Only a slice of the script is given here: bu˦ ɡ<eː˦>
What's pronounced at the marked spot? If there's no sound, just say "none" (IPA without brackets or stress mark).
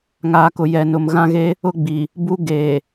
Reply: eː˨